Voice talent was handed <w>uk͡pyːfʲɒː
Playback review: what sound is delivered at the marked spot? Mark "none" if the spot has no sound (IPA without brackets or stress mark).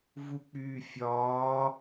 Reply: v